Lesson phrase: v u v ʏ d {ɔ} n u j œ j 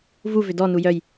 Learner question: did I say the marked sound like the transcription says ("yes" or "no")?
yes